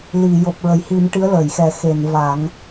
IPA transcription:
li˨˩˨ jo˨˩p̚ɹə˨˩˨jhi˨˩˦m ʈɨ˧˥ə̯ləː˨˩˨jxɛ˨˩˦ xe˨˩˨n va˨˩˦ŋ

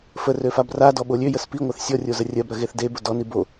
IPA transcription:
fərø fabradɔ ɓolʲøjəs piŋʷɜθ sʲɔrʲo zərʲɜbɾɜ ɣeθdebʊ dɔni bo

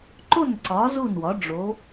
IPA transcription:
ǃo˥˩nǀɒ˩˥ zu˥˩nwɒ˩˥ ɖ͡ʐo˩˥

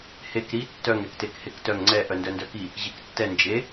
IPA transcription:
hek ɾi tːœŋ ɾɛktekhektœŋ ŋ͡ǀɛ ʔœndœndœki | ʑiktːɛ nd͡ʒe

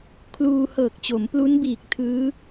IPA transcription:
kʰluː˧hɤː˨˩k̚t͡ɕo˩˦m plu˦˥nbiː˨˩k̚ tʰɯː˦˥

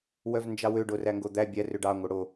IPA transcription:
wœvnd͡ʒɑwø ɖoræŋɡod̪æ bʲæ røɖɑ ŋʷœɽo

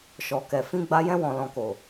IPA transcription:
ʃɔ˨kɛ˨ fĩ˧ɡ͡ba˧ jɛ̃˧wɔ̃˨lɔ̃˨ko˨

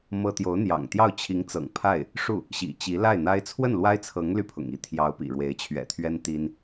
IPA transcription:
mɤ˥ t̪jo˧˥ʊ̯n̪jɑ̰˨˩ŋt̪jɑ˥˩ʊ̯ t͡ɕʰi˧˥ŋt͡sɤ̰˨˩ŋ pʰa˥˩ɪ̯ | ʂu˥˩ | ɕḭ˨˩t͡ɕi˧˥ la˥˩ɪ̯n̪a˥ɪ̯ t͡sʰwə˥˩nlwa˥ɪ̯t͡sʰɤ˧˥ŋ ly˥˩pʰʊ̰˨˩ŋi˥˩ t̪ʰjɑ˧˥ʊ̯ pḭ˨˩ɻwe˧˥ɪ̯ t͡ɕʰɥɛ̰˨˩t̪ʰɥɛ˥n t̪i˥n

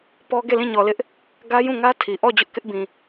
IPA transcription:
pɔ˦ ɡe˦˨lĩ˦˨ɲɔ˨lɪ˦ʔ | ɡä˦ jũ˦˨ŋä˦ tʰi˨ ʔɔ˦˨ d͡ʑʊ˦ʔkɪ˦ʔbĩ˨

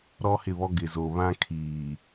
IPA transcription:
ɾɔ˦hɪ˦˨βɔ˦ ɡɪ˨zo˨βã˦ kʰiː˨

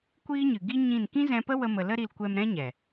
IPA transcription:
kʷiː˦ɲɨ˨ ɡi˦ɲĩ˦˨n kĩ˦zɛ̃˧pə˦ wə˦mə˧ lə˦ɾi˧l kʷɛ˧mɾɛ̃˦ɲɛ˨

